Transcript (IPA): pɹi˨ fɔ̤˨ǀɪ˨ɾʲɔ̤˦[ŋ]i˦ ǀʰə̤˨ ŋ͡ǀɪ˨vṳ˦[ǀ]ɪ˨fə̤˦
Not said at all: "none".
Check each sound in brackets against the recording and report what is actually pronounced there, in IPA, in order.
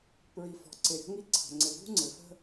ŋ, ŋ͡ǀ

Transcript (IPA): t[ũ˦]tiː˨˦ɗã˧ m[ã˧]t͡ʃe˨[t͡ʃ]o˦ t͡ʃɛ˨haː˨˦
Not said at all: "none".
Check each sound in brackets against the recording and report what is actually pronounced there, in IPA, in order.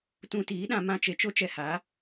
ũ˧, ã˧, t͡ʃ

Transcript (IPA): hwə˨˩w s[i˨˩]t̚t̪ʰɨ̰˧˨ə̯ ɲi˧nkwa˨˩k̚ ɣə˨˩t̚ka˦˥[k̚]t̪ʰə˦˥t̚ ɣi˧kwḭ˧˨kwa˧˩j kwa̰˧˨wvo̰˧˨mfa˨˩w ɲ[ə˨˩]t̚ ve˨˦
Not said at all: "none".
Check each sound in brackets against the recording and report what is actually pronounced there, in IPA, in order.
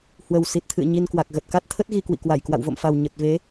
i˨˩, t̚, ə˨˩

